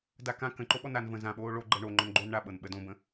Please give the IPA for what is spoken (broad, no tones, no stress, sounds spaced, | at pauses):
d a k ã k ə̃ ǃ o ɓ ɔ n a n v ə̃ z ã ɓ oː ɭ o ɡ͡ǃ ɤ ɳ o ŋ͡ǃ ɔ̃ n ɡ͡ǃ oː n ɳ a ɓ ɤ n ɓ ə d õ b ə̃